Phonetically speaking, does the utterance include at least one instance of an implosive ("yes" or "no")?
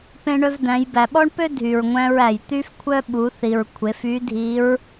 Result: yes